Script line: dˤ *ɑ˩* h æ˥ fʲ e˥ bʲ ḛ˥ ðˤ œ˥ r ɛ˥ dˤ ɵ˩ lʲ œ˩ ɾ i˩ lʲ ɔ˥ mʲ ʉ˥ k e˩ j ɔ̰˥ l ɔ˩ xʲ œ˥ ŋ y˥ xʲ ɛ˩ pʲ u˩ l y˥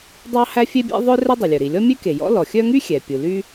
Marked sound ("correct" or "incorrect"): incorrect